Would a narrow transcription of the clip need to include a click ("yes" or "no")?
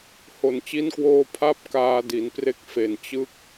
no